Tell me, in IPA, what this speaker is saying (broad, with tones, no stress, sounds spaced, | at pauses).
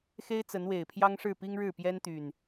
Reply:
x e˦ ɪ̯ t͡s ə˨˦ n w e˨˩ ɪ̯ pʰ j ɑ˦ ŋ ʂ ɻ̩˥˨ p i˦ ŋ ɻ ɻ̩˥˨ p j ɛ˦ n t̪ y˨˩ n